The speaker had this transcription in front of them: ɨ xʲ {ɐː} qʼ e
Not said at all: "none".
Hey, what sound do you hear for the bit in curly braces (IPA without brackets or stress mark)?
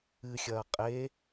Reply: ɐː